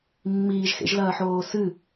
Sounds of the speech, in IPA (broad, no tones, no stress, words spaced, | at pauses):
mːiːʒxḛʒlɐːħoː sɨ